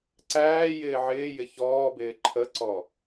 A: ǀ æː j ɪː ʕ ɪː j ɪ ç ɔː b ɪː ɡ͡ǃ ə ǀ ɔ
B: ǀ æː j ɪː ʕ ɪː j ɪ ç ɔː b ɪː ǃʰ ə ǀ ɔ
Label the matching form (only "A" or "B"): B